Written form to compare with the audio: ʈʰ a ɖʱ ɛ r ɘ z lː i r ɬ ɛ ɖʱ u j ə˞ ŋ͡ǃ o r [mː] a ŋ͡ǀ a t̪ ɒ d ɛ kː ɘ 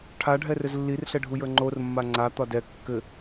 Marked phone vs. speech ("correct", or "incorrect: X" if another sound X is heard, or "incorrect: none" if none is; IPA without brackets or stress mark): correct